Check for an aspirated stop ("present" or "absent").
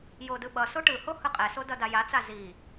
absent